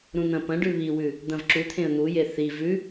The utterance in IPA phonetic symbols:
ɾ ũ n̪ ɐ̃ p ɐ̃ ɖ ʉ β i w ʉ | d̪ ɐ̃ v ǁ u t̪ʰ ẽ ə̯ n̪ u j e θ i v ʉ

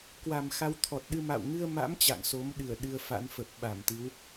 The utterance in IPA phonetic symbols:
k w a˨˩ m x a˧ w t̪ʰ ɔ˨˩ t̚ ɗ ɨ˧ m a̰˧˨ w ŋ ɨ˧ ə̯ m a̰˧˥ m t͡ɕ a̰˧˨ ŋ s o˨˦ m ɗ ɨ˧˩ ə̯ ɗ ɨ˧ ə̯ f a̰˧˥ n f ə˨˩ p̚ ɓ a˧˩ m t̪ ɨ˨˦ w

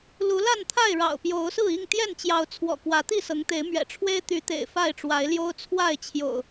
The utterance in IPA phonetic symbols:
l u˨˦ l a˥˨ n t̪ʰ a˥˨ ɪ̯ ɻ ɑ̰˨˩ ʊ̯ p j o˨˦ ʊ̯ s ɹ̩˥˨ i˥˨ ŋ t̪ j ɛ˥˨ n t͡ɕ j ɑ˨˦ ʊ̯ t͡sʰ w ɔ̰˨˩ k w ä˨˦ t̪ i˥˨ s ɤ˨˦ ŋ t̪ e˨˦ ɪ̯ m ɥ ɛ̰˨˩ ʈ͡ʂʰ w e˦ ɪ̯ t̪ y˨˦ t̪ ḛ˨˩ ɪ̯ f a˥˨ ɪ̯ ʈ͡ʂ w a˨˦ ɪ̯ l j o˦ ʊ̯ t͡sʰ w a˥˨ ɪ̯ t͡ɕʰ j o̰˨˩ ʊ̯

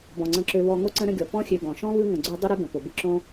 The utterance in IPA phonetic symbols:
b ɔ̃˩ ŋ͡ǀ ə̃˨ ǁ ø˨ β ɔ˨ ŋ o˥ ǀ ə̃˦ ɾ ə̃˦ ɡʲ ɔ˩ p ɔ̃˦ xʲ ø˨ ɡ ɔ̃˩ ʃ ɔ̃˥ β ɯ˦ ŋ ə̃˩ ɡ͡ǀ ø˦ dˤ ə˥ ɾ ɯ˥ ɡ ə̃˩ p o˩ b ɯ˦ ǁ õ˥

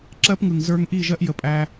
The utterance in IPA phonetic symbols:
ǁ ɜ˦ p ŋ ɯ˨ ŋ z ə˞˧ ŋ ʔ i˦˨ ʒ ɜ˦ ʔ j ə˧ pʼ æ˦

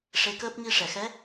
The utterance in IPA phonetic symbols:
ʂ e˧˥ k əː˦˥ p̚ ŋ i˧ ʂ ɛ˨˩˨ x ɛ˧˥

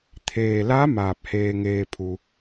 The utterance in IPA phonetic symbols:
t̪ʰ eː˩ l a˧˥ m aː˧˩ p̚ h eː˧ ŋ eː˧ pʰ u˩

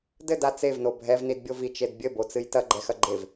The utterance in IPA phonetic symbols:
d ɘ d a t͡s e v n o bʱ ɛ v n i d bʲ o v i t͡ʃ e d bʲ ɘ b o t͡s ɨ j t ɐ ɡ͡ǃ ɛ x ɐ ɡ͡ǃ e v

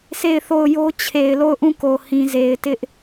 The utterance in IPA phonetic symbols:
s e˦˨ ɪ̯ θ o˦˨ ʊ̯ j o˦ t͡ɕʰ e˨ ɪ̯ l o˦˨ ʊ̯ ʔ ũ˦˨ k o˨ h ĩ˨ z e˨ ɪ̯ t ɪ˦ ʔ

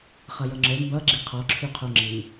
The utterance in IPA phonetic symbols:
χ ʌ j ʌ ŋ͡ǁ ə˞ m b ʌ ɡ͡ǁ i qʰ ɔ ǁʰ y qʰ o ŋ͡ǁ i

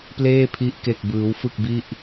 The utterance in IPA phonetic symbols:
p l eː˥˩ pʰ i˦˥ ʔ k e˥˩ k̚ b ɯː˦˥ w f ɯ˥˩ k̚ b i˥˩ ʔ

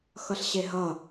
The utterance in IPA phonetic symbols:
x ʌ ɬ ɕ e ɦ ʌ

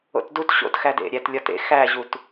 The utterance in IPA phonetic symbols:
o̰ t d u t ɕ o̰ t x æ d ḛ ɾʲ æ t lʲ ɒ t ḛ x æ ʑ u t

